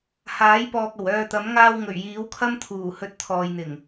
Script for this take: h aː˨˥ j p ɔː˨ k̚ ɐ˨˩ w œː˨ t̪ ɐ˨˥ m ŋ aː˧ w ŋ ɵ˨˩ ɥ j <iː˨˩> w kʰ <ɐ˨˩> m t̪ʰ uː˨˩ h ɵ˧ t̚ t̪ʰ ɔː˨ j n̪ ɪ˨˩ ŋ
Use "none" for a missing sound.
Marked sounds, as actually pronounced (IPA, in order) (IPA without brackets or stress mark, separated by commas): iː˨˥, ɐ˥